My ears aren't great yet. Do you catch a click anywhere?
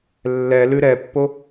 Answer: no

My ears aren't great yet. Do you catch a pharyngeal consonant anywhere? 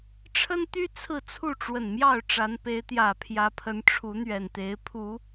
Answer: no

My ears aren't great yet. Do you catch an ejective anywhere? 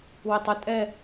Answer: yes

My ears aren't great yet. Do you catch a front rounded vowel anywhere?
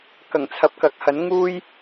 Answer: no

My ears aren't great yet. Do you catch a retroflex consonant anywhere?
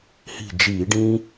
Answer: yes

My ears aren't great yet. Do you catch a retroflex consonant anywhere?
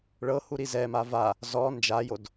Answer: yes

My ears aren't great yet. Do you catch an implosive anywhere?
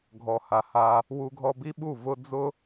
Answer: yes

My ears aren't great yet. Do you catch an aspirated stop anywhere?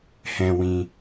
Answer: no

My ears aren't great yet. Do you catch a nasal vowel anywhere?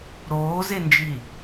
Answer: no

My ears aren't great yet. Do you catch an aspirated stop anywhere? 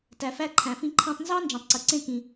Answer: yes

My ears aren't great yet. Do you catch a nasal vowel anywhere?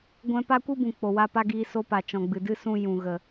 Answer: yes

